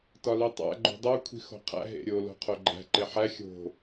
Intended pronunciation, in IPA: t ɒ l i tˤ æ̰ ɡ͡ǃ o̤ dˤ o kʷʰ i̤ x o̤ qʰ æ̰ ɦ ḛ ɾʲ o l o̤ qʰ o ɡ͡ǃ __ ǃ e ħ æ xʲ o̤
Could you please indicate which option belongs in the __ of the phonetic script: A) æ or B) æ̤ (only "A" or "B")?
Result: B